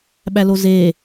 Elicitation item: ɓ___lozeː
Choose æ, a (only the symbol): æ